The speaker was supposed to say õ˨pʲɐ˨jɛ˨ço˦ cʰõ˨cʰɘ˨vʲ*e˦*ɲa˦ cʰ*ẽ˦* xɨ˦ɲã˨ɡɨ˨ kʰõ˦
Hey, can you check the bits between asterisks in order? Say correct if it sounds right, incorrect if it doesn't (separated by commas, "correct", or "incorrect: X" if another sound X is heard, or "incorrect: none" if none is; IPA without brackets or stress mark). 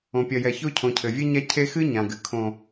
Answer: correct, incorrect: e˦